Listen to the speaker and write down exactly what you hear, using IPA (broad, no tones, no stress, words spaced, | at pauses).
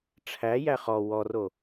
ʈ͡ʂʰæjæ χɔ wɔro